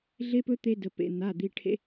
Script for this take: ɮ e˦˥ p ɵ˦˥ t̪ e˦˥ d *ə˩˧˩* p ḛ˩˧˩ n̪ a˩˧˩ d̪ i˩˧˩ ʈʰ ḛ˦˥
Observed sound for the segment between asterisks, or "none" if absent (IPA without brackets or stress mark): ə˩˧˩